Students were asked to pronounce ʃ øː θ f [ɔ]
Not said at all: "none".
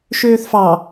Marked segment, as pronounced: ɑ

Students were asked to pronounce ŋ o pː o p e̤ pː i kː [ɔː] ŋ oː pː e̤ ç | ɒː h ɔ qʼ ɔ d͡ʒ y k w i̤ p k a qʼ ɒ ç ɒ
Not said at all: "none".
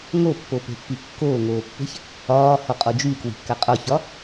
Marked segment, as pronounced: oː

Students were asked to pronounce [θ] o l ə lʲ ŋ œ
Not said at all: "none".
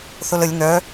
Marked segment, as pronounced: θ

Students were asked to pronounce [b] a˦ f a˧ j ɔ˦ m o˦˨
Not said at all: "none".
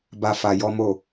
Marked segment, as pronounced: b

